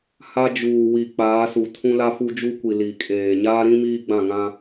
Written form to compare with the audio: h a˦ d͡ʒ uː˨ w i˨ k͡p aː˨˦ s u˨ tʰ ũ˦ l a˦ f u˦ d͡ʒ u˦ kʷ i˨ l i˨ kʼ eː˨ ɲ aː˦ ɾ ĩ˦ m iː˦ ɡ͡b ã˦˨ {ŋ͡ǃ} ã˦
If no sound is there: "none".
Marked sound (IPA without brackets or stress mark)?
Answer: ŋ